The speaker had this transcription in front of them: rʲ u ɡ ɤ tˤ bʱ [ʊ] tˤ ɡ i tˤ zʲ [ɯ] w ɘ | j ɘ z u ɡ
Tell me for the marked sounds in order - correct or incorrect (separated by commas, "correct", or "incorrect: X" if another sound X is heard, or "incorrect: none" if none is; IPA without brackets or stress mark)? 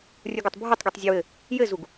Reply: incorrect: ɯ, incorrect: ə